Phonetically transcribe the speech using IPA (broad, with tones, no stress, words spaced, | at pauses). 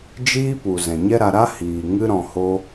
d͡ʒiː˦pu˨ zɛ̃˨ɲɛ˦ɾa˧ɾa˦ hiː˨ ŋɨ˧ɾɔ̃˨ho˧